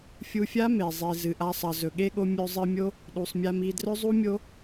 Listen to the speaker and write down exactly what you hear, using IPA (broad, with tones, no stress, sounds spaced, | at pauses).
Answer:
fʲ u˧ fʲ a˦ m e˨ zˤ i˨ z ɨ˨ ʔ a˧ sˤ ɐ˨ z ɵ˨ ɠ e˧ ɠ o˧ mʲ ɵ˧ zˤ ɨ˧ mʲ o˦ | ɗ u˨ sˤ mʲ a˧ m i˧ d r ɵ˦ zˤ u˦ mʲ o˦